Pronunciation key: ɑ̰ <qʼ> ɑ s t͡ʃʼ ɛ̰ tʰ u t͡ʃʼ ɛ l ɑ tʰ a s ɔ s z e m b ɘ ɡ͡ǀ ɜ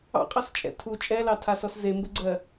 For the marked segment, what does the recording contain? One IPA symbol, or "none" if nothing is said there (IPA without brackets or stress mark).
qʼ